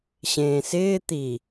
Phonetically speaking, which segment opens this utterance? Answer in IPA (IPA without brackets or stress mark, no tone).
ɕ